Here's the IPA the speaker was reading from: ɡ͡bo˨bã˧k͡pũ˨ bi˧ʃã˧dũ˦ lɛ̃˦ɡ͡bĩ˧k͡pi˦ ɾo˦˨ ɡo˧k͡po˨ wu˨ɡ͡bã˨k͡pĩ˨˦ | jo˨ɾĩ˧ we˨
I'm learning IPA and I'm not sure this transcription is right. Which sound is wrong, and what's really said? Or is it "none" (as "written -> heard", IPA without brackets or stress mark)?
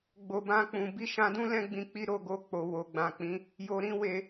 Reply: u˨ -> o˨